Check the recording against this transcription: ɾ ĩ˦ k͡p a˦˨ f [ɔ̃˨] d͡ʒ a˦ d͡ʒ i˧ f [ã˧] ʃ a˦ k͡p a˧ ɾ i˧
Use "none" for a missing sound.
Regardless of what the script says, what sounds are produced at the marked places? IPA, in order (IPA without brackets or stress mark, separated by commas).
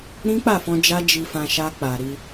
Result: ɔ̃˧, ã˧